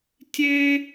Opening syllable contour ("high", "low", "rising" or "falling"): high